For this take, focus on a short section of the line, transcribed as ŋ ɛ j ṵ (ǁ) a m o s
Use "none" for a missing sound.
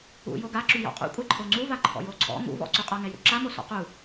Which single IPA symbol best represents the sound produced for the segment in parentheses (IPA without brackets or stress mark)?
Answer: ǁ